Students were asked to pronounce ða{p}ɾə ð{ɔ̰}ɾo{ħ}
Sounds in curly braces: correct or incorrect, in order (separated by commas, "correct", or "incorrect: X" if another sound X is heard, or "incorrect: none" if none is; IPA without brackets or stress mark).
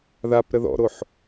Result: correct, correct, correct